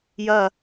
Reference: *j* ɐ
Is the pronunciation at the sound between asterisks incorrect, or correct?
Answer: correct